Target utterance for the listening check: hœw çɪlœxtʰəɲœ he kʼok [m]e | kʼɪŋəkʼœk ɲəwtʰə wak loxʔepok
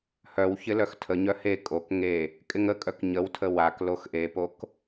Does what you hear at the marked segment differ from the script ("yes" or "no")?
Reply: yes